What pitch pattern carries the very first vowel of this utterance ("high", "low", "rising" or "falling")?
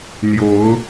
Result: rising